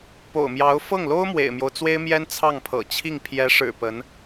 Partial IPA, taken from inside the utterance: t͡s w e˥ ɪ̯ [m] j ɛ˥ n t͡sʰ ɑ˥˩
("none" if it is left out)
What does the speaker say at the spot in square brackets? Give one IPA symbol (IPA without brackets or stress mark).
m